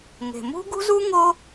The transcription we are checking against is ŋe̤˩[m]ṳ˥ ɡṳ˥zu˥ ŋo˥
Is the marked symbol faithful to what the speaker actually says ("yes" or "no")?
yes